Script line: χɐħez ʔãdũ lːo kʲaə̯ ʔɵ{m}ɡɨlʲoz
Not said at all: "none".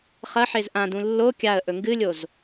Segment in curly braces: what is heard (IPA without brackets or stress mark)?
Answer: ŋ